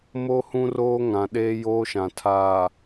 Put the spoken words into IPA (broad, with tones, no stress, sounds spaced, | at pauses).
m o˦ h ũ˦ r oː˦ ŋ ã˨ ɗ eː˦ j oː˦ ʃ ã˨ tʰ aː˨